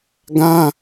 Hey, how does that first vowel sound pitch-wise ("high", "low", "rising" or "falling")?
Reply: high